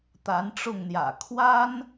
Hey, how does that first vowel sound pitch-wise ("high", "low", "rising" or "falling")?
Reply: rising